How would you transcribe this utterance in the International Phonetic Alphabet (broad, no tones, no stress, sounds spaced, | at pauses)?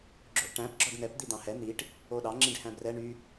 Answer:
ɡ͡ǁ o ʔ ʈ æ̃ p ɡ͡ǁ ɔ ɖ n ɛ p d̪ i d̪ ɑ̃ h ɛ n̪ i ʈ | o ɗ ɑ ŋ͡ǁ ĩ ɖ h æ̃ b r ɛ ɳ y